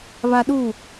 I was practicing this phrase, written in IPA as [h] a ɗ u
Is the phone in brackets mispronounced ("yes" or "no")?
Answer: yes